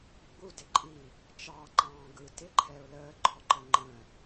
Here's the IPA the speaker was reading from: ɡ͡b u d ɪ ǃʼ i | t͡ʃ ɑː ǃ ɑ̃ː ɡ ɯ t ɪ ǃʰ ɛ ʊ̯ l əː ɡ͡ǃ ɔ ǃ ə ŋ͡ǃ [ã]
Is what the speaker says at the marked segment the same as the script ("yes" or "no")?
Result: no